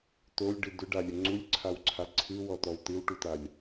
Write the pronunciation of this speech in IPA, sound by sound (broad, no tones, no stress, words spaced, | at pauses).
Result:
tolʲɖɨ dʏɖalʲə ŋ͡ǀulʲǀʰawǀʰa ǀʰɨwɔtɔw tɨwʈutalʲ